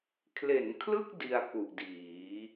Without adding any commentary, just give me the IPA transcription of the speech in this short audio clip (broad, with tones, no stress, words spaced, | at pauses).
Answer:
kʰle˩˦nkʰlɯ˥˩k̚ di˧a̯ku˨˩ʔdiː˩˦